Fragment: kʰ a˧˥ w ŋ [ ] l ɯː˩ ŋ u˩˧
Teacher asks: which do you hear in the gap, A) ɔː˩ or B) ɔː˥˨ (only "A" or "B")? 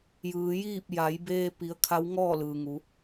B